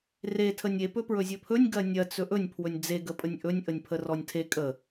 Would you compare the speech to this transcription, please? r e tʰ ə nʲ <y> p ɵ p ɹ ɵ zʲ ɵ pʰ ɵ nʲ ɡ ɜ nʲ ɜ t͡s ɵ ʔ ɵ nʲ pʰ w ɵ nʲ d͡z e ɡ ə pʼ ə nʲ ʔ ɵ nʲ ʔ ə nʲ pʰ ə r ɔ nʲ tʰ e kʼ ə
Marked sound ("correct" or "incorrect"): incorrect